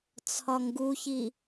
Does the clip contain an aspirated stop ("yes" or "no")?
yes